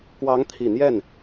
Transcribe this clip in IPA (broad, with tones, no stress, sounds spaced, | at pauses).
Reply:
k w ɑ˧˥ ŋ t̪ʰ i˨˩ n̪ j ɛ˥˩ n